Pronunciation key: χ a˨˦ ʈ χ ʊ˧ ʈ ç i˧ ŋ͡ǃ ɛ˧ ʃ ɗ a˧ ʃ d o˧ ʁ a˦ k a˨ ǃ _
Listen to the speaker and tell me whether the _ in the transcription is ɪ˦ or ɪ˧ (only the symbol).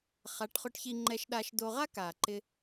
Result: ɪ˧